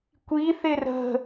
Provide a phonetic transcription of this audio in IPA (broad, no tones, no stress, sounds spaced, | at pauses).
kʷ i θ ɪ r ə̤